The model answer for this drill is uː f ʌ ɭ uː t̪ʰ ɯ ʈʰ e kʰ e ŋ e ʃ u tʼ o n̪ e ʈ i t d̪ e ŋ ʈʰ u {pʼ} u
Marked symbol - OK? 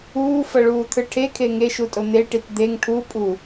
yes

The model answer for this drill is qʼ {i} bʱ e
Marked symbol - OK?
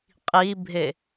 yes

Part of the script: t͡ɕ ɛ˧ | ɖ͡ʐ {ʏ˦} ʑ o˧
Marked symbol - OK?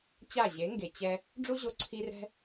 no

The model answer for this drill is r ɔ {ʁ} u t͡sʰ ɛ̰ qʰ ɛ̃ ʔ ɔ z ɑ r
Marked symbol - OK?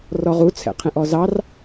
yes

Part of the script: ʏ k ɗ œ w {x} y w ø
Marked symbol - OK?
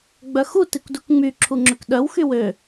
yes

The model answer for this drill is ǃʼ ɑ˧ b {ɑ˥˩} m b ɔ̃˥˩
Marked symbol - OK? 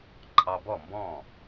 no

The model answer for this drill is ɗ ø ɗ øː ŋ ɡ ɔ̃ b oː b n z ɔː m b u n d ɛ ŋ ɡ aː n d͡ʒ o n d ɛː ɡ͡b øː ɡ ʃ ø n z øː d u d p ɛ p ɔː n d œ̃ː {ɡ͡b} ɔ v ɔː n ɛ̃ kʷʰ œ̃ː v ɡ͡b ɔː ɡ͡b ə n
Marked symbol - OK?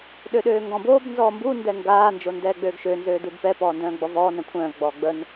yes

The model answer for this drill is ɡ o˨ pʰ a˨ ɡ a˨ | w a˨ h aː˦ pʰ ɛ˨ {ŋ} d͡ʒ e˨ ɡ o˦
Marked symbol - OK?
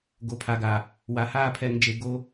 yes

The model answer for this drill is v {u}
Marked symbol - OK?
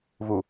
yes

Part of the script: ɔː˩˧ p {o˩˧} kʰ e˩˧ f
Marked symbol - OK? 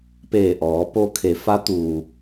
no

